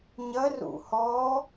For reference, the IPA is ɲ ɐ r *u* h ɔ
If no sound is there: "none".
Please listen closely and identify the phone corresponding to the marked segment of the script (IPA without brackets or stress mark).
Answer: ṵ